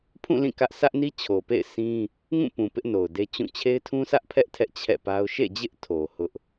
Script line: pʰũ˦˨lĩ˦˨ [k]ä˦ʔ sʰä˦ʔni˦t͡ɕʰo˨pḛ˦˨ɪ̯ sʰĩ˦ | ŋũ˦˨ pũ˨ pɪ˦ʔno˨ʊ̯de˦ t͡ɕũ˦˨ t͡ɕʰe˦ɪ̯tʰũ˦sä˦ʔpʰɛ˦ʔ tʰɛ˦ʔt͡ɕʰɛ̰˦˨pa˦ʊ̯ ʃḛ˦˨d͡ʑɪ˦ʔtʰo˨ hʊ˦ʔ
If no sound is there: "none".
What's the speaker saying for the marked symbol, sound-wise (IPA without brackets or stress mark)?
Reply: k